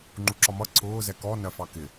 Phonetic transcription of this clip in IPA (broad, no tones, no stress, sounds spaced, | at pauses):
ŋ͡ǃ u ǁ ɒ m ʌ ǀʰ ʊː z ɛ k ɔ n ɜ f ɑ k ɪ